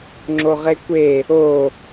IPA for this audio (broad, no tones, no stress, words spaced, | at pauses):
ŋ͡ǁoʁekʷe | o